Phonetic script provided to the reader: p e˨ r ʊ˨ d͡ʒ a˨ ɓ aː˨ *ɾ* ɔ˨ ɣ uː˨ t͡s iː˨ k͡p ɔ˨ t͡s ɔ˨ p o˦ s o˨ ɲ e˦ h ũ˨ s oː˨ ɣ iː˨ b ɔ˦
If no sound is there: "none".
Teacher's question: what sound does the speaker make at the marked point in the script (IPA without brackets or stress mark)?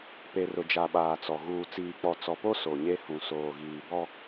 t͡s